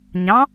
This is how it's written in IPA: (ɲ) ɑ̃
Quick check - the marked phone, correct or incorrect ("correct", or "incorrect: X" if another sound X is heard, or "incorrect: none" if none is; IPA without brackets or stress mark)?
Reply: correct